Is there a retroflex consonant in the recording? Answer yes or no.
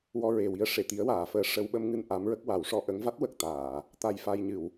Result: yes